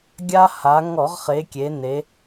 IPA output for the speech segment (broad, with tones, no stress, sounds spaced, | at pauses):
ɡʲ a˧ h a˩˧ ŋ ɔ˧˩˧ ʁ χ e˩˧ kʲ e˩˧ n e˩˧